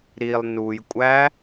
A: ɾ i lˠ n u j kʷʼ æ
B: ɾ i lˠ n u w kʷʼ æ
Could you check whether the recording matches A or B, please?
A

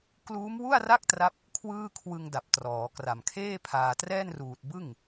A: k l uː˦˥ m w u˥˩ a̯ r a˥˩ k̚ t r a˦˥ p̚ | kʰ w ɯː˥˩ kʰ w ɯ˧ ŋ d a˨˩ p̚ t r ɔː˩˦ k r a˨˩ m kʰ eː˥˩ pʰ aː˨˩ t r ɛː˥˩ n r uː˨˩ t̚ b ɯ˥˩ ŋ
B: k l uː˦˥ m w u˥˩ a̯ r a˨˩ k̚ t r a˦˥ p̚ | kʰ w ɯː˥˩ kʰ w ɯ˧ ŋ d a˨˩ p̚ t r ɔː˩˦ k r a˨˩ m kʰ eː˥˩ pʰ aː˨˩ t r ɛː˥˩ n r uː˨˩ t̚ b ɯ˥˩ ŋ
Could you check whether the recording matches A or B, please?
A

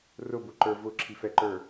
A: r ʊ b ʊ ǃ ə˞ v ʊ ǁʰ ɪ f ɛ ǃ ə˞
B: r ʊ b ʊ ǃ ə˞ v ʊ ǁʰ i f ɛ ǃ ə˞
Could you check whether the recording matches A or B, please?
B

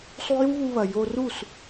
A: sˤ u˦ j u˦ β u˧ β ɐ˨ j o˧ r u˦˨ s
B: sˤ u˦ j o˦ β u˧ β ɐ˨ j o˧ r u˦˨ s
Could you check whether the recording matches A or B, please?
A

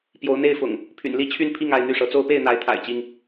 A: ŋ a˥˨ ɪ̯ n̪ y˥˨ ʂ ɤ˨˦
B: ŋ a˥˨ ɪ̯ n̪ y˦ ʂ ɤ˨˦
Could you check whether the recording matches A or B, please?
A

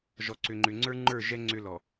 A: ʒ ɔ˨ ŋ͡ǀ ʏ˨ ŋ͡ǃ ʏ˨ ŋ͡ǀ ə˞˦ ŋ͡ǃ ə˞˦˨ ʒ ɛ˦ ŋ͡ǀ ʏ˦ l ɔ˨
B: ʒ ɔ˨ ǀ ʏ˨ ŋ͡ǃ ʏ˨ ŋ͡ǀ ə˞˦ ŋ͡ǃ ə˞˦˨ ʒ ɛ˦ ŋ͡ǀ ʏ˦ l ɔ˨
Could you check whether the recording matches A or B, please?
B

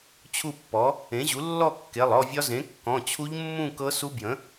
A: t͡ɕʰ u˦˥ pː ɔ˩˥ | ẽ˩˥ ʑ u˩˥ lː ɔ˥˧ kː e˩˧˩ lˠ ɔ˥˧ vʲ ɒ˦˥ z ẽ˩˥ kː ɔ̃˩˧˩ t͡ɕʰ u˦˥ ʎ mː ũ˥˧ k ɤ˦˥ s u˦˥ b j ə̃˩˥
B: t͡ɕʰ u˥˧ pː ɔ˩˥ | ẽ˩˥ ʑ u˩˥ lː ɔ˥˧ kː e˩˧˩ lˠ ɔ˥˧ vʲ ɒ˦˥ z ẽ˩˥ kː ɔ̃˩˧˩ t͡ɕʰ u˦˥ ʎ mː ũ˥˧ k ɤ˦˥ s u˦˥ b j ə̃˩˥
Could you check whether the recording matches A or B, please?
B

